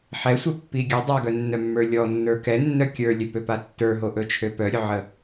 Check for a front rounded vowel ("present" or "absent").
present